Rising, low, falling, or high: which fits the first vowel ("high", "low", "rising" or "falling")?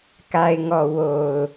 low